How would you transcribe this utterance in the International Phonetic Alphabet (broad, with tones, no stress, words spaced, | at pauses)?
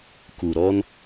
ku˨ɾɔ˦n